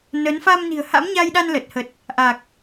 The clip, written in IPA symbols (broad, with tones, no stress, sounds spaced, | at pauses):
n ə˨˦ n f a˧ m n i̤˨˩ ə̯ h a̰˧˥ m ɲ a˧ j ɗ a˧ n l ə˨˩ t̚ h ə˨˩ t̚ | ʔ a˨˩ k̚